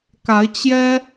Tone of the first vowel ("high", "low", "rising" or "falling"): rising